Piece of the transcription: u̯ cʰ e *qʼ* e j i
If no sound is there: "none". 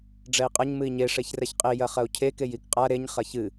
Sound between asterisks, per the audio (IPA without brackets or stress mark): k